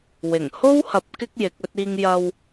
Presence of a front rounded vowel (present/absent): absent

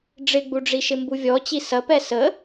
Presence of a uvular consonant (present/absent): absent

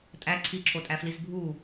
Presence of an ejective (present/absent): present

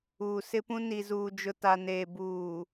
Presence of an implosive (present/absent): absent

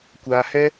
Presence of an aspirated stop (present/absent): absent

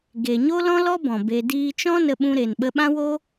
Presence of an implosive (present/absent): present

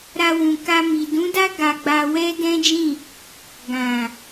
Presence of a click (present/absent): absent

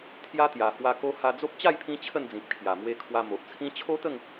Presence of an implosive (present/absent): absent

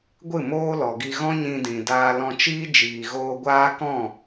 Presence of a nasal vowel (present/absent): present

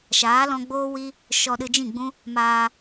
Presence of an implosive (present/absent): present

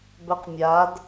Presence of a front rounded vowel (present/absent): present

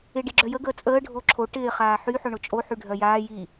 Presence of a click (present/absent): present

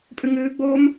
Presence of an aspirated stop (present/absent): absent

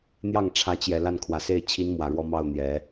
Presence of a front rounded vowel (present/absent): absent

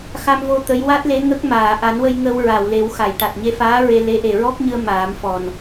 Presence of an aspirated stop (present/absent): absent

